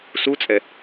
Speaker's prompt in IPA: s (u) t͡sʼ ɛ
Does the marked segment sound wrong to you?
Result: no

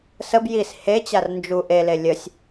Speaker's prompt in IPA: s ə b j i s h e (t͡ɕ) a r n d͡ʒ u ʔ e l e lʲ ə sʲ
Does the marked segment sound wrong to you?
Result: no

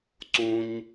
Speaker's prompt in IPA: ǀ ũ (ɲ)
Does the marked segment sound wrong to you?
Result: no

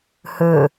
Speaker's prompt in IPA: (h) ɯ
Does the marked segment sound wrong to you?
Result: no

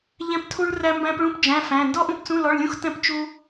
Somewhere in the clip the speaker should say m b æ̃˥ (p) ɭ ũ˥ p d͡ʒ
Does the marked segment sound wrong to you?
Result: no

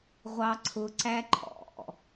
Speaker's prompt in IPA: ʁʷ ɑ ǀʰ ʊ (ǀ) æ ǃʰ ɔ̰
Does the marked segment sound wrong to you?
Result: no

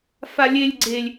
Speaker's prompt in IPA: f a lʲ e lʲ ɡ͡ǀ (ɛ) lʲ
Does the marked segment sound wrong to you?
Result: yes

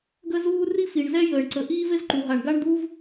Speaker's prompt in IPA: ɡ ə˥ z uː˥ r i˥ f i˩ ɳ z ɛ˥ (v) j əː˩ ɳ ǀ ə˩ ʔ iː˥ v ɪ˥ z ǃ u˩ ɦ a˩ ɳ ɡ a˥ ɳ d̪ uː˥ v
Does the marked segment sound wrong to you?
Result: yes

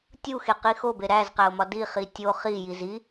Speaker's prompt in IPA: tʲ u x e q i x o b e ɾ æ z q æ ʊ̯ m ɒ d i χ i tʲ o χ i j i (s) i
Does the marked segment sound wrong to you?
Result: yes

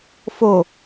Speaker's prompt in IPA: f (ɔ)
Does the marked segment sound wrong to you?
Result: yes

